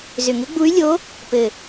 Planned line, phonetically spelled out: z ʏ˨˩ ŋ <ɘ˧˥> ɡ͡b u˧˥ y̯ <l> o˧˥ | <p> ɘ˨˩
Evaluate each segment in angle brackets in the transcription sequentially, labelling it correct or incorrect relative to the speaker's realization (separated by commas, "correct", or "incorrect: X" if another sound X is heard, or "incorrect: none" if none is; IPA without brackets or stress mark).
correct, incorrect: lʲ, correct